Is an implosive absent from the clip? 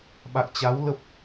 no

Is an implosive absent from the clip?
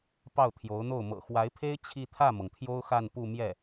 yes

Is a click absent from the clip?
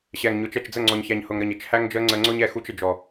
no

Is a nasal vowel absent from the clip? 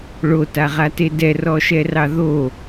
yes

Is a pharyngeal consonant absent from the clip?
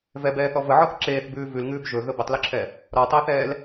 no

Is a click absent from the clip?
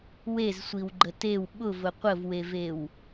no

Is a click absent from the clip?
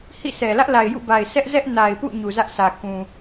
yes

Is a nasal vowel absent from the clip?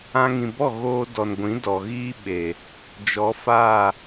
no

